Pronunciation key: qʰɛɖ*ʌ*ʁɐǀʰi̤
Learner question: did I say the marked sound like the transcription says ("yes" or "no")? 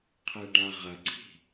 no